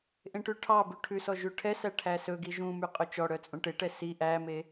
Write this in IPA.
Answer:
ʔ ẽ ʈ ʉ ʈʰ ɑ b ʉ ʈʰ ʉ s ɔ ʒ ʉ ʈʰ ɛ s æ ʈʰ æ s ɵ ɡ i ʒ ũ m y qʼ ɵ t͡ʃ ɔ ɽ œ t͡sʼ ũ ʈ e ʈ ɛ s i ʔ æ m e

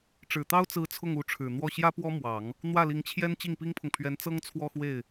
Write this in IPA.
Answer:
ʈ͡ʂ ɻ̩˨˩ t̪ ɑ˥ ʊ̯ t͡s ɹ̩˧˥ t͡sʰ ʊ˥˩ ŋ u˧˥ ʈ͡ʂʰ ɻ̩˨˩ n̪ w ɔ˥˩ ɕ j ä˥ p w ɔ˥ m w ɑ˨˩˦ ŋ | n̪ w ä˥˩ l i˧˥ ŋ t͡ɕʰ j ɛ˥ n t͡ɕ i˥˩ ŋ p i˥ ŋ pʰ ʊ˨ ŋ pʰ ɥ ɛ˧˥ n t͡s ɤ˥ ŋ t͡sʰ w ɔ˥˧ x w e˥˩ ɪ̯

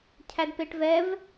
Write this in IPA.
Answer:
cʰ æ d p e ʈ v ɛ v

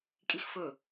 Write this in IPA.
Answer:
kʼ i x f ɵ

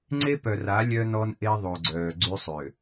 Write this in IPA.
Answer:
ŋ͡ǀ e˦ p œ˨ r a˨˦ lʲ œ˦ n ɔ˦ n ʔ e˦ ðˤ o˨ ɡ͡ǀ œː˨ ɡ͡ǀ y˦ sˤ ø˨

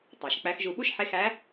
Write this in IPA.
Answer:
tˤ ɑ˩ ʃ k͡p æ˧˥ x ʒ u˧ ɓ u˥ ʃ ħ e˧˥ x æ˧˥

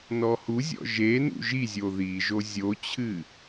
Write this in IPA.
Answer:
n ɔ h u zʲ ɔ̰ ʒ e n ṵ ʒ i zʲ o ð i ʒ o zʲ o t͡ɕʰ ɨ

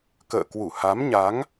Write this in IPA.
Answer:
k ə̰ː˧˨ k w u˧˩ h a˨˦ m ɲ a˨˦ ŋ

